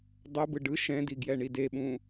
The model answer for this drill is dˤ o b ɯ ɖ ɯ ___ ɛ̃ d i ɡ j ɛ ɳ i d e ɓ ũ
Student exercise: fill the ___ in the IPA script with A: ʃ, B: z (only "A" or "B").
A